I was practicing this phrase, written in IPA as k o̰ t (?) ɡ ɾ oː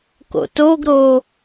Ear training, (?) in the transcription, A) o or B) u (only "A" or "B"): A